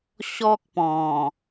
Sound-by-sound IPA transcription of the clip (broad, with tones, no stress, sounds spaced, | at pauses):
ɕ ɔ˦ k̚ p ɔ̃˨˩